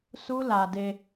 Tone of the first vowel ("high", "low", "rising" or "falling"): high